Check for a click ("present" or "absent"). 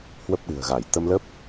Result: absent